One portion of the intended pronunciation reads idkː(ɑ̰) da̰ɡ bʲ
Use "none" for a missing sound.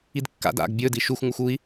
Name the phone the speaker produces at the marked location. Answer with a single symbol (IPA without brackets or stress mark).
a̰